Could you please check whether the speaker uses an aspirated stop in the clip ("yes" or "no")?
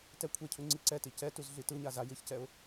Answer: yes